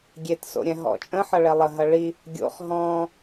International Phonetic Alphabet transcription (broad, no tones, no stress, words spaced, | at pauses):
ɡʲetso̰ ɾʲɛ̃ɦɔ̰t͡ʃʼə̃ħʌ ɭɛlˠəɦɐ ɭi | ɡʲo̰χ ɦɔ̃